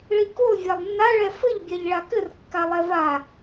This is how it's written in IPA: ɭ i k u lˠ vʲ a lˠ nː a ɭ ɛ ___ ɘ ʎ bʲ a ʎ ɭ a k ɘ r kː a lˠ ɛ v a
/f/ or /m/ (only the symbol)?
f